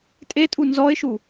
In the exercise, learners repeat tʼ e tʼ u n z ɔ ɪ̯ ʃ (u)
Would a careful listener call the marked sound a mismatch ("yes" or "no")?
no